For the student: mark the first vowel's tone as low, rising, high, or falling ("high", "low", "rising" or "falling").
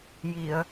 low